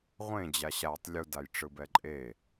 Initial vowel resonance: nasal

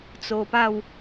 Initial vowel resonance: oral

